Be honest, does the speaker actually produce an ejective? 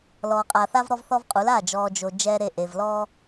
yes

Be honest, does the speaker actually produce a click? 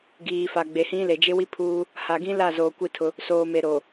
no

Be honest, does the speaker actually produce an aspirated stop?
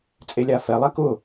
no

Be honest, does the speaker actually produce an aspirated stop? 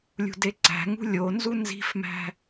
no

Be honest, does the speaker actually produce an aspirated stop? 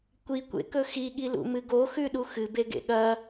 no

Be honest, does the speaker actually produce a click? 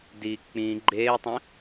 yes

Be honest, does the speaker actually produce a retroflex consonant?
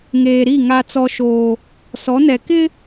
no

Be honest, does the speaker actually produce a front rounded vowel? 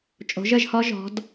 no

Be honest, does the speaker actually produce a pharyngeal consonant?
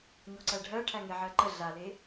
yes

